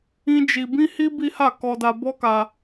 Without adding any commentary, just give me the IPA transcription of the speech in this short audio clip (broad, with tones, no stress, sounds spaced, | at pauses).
ĩ˦ d͡ʒ i˧ b ĩ˦ h i˦ b i˦ h a˦˨ k ɔ˧ d a˧ b ɔ˦ k a˧